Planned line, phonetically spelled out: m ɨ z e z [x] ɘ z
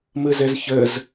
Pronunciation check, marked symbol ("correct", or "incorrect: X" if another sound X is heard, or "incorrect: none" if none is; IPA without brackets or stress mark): incorrect: ç